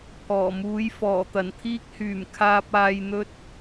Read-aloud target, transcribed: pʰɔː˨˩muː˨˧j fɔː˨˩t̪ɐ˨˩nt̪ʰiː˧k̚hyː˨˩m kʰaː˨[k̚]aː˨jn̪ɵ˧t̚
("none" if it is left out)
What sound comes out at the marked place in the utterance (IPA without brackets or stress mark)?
p̚